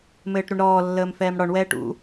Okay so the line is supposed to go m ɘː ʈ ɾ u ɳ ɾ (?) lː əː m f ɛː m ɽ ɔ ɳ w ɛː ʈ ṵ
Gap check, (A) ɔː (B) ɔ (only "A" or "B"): A